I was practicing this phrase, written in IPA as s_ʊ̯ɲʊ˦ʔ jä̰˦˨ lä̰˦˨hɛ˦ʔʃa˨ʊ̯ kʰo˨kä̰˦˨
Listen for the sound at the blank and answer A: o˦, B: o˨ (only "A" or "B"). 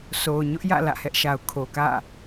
B